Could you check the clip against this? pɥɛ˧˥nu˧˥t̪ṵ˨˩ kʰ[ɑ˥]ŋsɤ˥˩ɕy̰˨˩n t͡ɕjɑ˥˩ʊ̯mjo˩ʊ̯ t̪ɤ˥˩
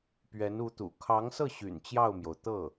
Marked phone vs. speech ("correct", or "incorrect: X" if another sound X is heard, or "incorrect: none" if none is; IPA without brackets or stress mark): incorrect: ɑ˧˥